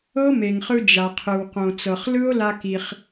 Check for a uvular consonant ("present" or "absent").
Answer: present